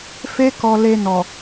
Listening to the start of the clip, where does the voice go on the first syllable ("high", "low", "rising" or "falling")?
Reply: high